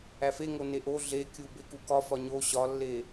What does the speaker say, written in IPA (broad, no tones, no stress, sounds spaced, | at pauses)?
æ f e ŋ o n e ʔ o ɮ e kʲ u b e k u k ɒ f ɒ ɲ o ɕ ɒ lː e